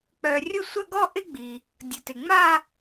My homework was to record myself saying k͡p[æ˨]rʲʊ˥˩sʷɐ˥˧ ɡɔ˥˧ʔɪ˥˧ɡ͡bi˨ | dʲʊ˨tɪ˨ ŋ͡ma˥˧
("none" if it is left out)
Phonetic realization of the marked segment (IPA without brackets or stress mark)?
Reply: œ˨